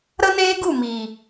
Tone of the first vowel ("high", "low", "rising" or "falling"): high